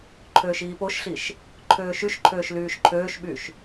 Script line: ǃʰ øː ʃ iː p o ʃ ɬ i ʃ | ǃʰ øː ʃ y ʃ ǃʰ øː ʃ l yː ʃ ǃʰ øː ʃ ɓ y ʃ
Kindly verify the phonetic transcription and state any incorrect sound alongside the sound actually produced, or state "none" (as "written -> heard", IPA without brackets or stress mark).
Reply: none